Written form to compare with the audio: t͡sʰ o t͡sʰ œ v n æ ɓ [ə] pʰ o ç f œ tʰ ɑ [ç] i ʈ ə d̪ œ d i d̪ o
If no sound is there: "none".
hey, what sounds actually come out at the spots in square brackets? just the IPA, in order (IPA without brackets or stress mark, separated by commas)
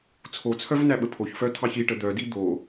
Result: ə, ç